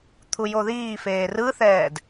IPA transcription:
t̪ʰ u j o ð iː f eː r ɯ θ ɛː d

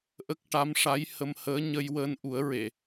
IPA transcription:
ʔ ə˦˥ k̚ ʈ a˧˥ m ʂ a˧˥ j h ə˧ m h əː˧˥ ɲ ə˧ j w əː˧ n ʔ u˨˩˦ ə̯ ɹ e˨˩˨

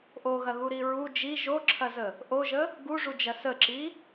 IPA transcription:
ʔ o ɣ ɐ ɣ u ɾ i ɹ u d͡ʒ i ʒ o ǁʰ ɐ z ə | ʔ o ʒ ə | ɡ u ʐ u d͡ʒ ɐ s ə ǁ i

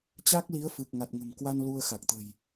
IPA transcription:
t͡ɕ a˦˥ k̚ l i˨˦ ə̯ f ɨ˨˩ k̚ ŋ a˨˩ t̚ ŋ ə̤˨˩ m k w a˧ n l u˧ ə̯ x a˨˩ k̚ t̪ ə̤˨˩ j

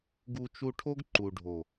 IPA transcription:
ɡ u˧ t͡ʃ u˧ ʈʰ o˦ ɡ ǃ u˨ ɖʱ o˨

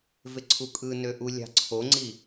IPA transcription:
v e ǀʰ u kʼ ɯ n ø ʔ u lʲ ɑ̤ ǀʰ o ŋ͡ǀ i

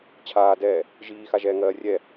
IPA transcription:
t͡ɕʰ aː d ɛː | ʒ iː x a ʒ ɛː ŋ ɜː rʲ ɛ

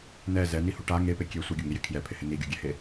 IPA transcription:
n ɛ z ɛ n i h u ʈ a ŋ e p e kʲ e sʷ i ɡʲ o ŋ i j ɪ kʰ j ɛ pʰ ɪ h ɪ n i ɡʲ o ɡʲ ɛ h e

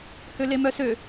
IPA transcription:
h ø l e m œ s ø

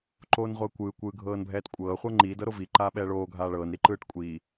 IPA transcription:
ǃ oː n ʁʷ ɤ ə̯ kʷ ɯː kʷ ɯː ɡʱ ɤː n bʱ ɛː t kʷʼ ɤː χʷ ɤ ŋ͡ǃ iː d ɤ ɾ o v i ǃ aː ɓ ɛː ɭ oː ɡʱ aː ɭ ɤː n ɾ i ǃ ɯː ʈ kʷʼ iː

